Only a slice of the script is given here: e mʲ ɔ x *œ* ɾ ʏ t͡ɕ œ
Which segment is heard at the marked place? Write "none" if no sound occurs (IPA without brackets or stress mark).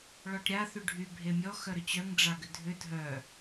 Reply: œ